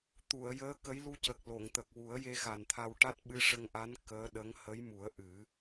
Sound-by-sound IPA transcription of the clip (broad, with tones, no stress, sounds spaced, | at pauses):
t̪ u˨˩˨ ə̯ j əː˧˥ k ə˧˥ j l u˧ c ə˨˩ k̚ l o˨˩˨ ŋ t̪ ə˨˩ k̚ w u˨˩˦ ə̯ j e˧ x a˨˩ n t̪ʰ a˧ w ʈ a˦˥ t̚ ɓ ɨ˧ ʂ ə˧ ŋ ʔ a˧˥ n k əː˧˥ ɗ ə˧˥ ŋ h ə˧˥ j m u˨˩˦ ə̯ ʔ ɨ˨˩˦